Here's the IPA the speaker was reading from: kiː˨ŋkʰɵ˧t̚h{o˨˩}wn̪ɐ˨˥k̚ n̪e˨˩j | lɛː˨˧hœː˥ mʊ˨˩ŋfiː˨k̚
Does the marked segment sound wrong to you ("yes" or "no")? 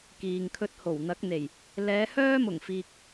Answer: no